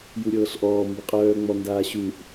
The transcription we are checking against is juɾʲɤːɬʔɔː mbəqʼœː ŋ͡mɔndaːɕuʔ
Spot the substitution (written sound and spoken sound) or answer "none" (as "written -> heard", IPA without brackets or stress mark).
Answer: none